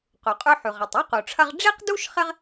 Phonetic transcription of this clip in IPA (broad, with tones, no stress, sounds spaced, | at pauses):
q u˩ qʼ ʉ˦ ħ ʉ˩ ʁ ɐ˩ tˤ ʉ˥ q u˩ ʈ͡ʂʰ ɐ˦ ʁ ɖ͡ʐ i˥ q d u˥ ʃ χ ɪ˦ ʁ